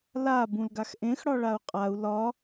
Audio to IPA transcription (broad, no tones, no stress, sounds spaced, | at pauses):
l a b ũ l ɡ a x ʔ ẽ x ɽ ɒ ɭ a u̯ qʼ a u̯ l ɒ